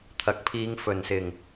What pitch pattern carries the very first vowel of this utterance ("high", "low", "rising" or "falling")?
rising